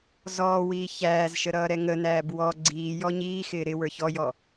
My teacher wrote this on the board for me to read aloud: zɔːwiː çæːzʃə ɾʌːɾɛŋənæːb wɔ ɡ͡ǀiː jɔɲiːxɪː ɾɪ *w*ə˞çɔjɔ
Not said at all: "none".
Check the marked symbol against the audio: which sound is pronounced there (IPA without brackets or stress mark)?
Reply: w